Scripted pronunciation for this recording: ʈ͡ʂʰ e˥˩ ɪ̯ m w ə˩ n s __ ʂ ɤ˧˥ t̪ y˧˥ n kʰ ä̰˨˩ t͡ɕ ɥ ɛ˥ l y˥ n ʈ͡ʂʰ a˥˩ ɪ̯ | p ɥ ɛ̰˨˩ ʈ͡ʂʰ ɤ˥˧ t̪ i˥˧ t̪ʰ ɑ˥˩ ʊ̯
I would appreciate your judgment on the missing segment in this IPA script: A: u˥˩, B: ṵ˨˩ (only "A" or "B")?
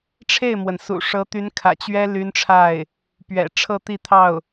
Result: B